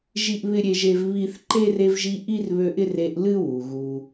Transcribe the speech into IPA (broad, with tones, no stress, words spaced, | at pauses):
ʒi˥ʔβɪ˥ɾʲe˦ʒe˦v βi˥θ ǃe˥re˦vʒi˦ ʔi˥rβø˦ʔɪ˥r e˦ʔ lɨ˥wu˩ɣu˨